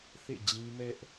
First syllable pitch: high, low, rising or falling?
falling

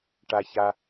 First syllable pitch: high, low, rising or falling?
low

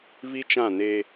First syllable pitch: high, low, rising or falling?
high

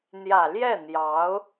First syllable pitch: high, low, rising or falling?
low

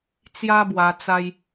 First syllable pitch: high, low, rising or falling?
high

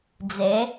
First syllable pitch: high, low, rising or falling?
rising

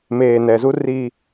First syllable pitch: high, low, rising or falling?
low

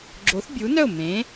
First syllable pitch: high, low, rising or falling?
rising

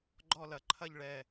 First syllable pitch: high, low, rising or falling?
falling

